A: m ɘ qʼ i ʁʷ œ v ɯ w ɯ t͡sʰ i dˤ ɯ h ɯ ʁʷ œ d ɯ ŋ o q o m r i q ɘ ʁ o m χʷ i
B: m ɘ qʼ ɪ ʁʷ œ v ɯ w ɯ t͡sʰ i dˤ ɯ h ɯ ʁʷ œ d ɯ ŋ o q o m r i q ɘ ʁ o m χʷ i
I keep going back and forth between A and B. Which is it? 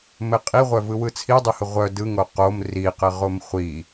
A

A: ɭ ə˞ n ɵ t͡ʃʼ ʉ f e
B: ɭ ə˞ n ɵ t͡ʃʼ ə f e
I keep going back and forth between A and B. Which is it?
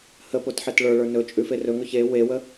A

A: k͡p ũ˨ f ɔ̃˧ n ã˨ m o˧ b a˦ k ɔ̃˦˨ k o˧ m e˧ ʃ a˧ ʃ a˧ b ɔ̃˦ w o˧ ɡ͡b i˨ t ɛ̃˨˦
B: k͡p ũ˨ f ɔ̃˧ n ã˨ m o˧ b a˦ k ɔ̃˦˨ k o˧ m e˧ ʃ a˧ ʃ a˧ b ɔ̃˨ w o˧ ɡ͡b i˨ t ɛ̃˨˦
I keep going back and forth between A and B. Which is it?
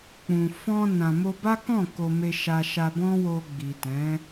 A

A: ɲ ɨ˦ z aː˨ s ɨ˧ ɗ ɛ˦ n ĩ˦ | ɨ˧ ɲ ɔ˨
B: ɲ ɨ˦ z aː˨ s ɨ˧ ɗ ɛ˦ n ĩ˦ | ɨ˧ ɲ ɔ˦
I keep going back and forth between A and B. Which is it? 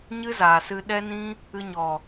A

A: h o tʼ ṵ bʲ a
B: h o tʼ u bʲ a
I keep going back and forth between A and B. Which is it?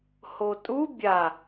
B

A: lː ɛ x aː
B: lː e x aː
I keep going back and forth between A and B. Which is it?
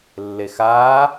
B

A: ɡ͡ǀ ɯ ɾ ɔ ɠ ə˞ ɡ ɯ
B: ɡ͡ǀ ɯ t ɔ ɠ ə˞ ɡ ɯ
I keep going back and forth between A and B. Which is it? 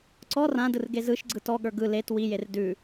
B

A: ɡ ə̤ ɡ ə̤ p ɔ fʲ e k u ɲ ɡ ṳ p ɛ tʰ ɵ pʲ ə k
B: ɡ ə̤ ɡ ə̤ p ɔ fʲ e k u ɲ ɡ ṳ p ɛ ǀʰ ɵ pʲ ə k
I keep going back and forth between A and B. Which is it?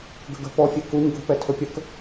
A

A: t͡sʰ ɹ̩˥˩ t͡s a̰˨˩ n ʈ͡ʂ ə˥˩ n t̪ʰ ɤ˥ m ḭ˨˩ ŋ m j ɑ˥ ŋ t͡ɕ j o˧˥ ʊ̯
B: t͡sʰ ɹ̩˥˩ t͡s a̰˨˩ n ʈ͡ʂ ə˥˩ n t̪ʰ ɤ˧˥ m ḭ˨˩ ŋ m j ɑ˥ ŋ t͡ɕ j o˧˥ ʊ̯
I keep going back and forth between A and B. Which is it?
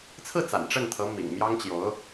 B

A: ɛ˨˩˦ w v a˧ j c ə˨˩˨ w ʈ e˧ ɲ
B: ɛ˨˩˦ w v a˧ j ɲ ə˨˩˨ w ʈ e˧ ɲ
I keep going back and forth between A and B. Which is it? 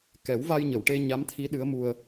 B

